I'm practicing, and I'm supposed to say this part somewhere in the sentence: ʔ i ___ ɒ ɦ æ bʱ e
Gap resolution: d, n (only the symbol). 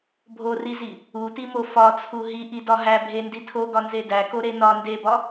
d